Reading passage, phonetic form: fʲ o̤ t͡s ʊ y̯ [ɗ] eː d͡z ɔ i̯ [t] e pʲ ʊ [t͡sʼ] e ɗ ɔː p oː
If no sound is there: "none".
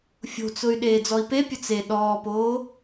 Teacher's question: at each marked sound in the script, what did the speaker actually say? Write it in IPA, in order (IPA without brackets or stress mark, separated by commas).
ɗ, p, t͡s